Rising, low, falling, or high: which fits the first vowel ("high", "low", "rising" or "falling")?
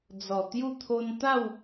low